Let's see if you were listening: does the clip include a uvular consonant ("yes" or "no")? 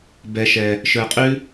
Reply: yes